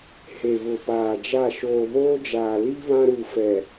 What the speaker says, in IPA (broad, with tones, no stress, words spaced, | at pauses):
he˨βʊ˨paː˨d͡ʒa˦˨ ʃoː˨βoː˦d͡ʒaː˨ li˦ βã˦ɾu˨fɛ˨